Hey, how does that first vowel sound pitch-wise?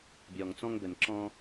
low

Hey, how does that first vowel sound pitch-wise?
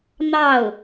falling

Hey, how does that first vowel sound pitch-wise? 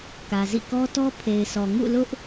low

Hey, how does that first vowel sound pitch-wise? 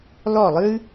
falling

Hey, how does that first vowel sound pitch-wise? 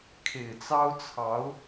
low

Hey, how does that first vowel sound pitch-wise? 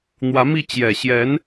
rising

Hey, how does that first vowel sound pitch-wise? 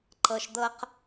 low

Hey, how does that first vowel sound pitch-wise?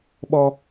high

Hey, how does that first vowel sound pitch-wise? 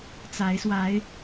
rising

